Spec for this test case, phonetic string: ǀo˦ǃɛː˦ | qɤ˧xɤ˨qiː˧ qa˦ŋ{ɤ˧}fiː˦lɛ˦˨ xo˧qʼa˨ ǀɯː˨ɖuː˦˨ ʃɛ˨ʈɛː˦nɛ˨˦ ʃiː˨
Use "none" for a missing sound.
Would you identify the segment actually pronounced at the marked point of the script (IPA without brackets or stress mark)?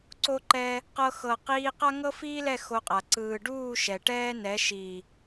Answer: ɤ˦